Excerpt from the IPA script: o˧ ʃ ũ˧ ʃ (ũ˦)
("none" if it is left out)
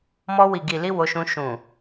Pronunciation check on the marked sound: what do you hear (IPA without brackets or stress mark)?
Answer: ũ˨